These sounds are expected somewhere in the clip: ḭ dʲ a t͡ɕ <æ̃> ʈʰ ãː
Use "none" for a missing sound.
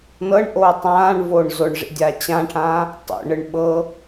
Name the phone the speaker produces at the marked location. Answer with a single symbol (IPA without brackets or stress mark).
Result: ã